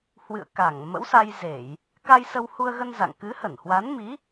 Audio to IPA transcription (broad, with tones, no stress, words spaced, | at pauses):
hwɨ̰˧˨ə̯ka˧˩ŋ mə̰˧˥wsa˧jze˧˩˨j | ka˧jsə˧whu˧ə̯ɣə˧n za̰˧˨ŋ kɨ˨˦hə˧˩nhwa˨˦nmi˨˦